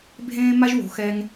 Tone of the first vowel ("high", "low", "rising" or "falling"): high